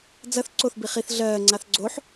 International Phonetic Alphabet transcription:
d͡z ɐ θ ǀ o θ b i χ i θ ɮ ɜː ŋ͡ǀ a θ ɡ͡ǀ o ħ

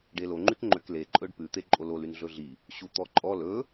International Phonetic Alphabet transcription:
ɖ e l o ŋ͡ǃ y k ŋ͡ǃ ø k l e ǃʼ ɵ ɖ p ʉ t̪ e ǃʼ o l o l y n ɮ ɵ ɮ i | ɕ u t̪ ɔ ǃʼ ɔ l ɵ

